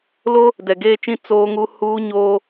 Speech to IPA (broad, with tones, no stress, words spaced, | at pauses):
lo˦ | dɛ˨ɡeː˦t͡ʃĩ˦ t͡soː˦ŋu˦ huː˦ɲoː˦